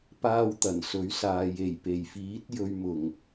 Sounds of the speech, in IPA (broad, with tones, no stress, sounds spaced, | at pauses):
p aː˥ w t̪ ɐ˨˩ n s ɵ˨˥ ɥ s aː˨ j e˨˩ j p e˨˩ j f iː˨˥ t̚ j ɵ˧ ɥ m ʊ˨˩ ŋ